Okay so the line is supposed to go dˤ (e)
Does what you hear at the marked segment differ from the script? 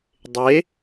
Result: no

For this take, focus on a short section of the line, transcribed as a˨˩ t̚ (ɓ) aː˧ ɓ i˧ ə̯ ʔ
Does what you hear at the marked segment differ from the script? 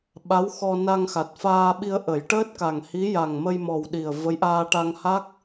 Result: yes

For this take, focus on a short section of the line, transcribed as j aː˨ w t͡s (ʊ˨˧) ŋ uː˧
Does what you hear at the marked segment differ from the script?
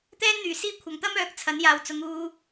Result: no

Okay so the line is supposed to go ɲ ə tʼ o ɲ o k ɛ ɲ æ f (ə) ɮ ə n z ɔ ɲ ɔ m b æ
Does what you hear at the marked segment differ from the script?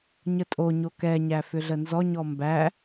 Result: yes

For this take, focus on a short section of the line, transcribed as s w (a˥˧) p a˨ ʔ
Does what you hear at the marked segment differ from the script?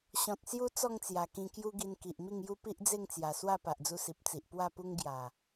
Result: no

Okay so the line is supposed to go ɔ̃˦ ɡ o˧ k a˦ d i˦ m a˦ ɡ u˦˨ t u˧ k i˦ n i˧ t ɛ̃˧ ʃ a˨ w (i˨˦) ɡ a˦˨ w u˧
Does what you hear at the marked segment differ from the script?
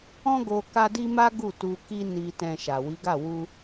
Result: no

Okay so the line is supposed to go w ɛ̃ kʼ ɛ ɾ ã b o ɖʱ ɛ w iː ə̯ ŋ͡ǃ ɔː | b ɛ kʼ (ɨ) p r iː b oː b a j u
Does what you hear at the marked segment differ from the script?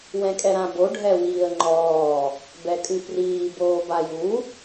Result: no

